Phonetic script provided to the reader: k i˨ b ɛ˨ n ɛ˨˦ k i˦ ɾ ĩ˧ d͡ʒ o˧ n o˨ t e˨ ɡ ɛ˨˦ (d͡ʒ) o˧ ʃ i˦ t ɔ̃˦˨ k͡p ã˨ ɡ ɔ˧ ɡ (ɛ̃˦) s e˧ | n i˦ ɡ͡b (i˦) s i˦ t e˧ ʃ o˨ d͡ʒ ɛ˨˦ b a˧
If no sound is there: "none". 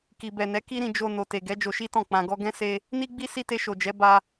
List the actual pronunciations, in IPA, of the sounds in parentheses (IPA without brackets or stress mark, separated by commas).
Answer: d͡ʒ, ɛ̃˦, i˦